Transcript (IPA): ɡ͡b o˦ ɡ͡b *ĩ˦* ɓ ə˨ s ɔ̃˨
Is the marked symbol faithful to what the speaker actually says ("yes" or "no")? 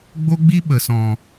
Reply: no